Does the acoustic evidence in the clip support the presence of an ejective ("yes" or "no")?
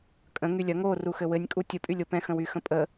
yes